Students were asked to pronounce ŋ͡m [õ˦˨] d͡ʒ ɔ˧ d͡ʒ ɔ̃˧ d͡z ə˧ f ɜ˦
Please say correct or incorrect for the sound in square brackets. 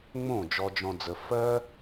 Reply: correct